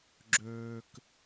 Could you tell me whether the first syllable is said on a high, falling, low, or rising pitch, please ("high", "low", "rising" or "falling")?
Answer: low